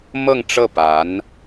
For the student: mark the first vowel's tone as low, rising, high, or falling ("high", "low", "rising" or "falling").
falling